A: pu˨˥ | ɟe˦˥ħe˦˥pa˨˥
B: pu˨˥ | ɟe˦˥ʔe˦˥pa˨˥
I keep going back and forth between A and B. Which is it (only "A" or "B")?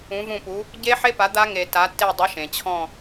A